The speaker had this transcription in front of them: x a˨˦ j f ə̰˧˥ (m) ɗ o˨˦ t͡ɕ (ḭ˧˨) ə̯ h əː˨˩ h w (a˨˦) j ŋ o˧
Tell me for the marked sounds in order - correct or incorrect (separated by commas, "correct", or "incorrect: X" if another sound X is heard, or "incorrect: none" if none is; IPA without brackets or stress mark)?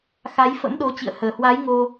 correct, correct, correct